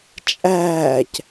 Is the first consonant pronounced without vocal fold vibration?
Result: yes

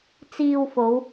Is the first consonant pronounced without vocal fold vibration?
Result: yes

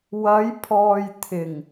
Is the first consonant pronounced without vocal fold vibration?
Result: no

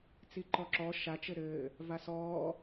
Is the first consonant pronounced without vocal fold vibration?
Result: yes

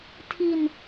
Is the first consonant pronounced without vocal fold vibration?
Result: yes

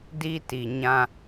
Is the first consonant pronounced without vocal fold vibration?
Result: no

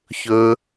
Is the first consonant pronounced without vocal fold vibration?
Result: yes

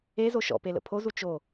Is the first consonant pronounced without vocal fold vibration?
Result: no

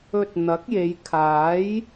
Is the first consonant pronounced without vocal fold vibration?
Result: yes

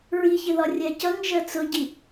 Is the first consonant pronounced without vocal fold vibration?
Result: no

